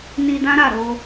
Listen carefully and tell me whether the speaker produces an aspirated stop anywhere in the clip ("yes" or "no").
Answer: no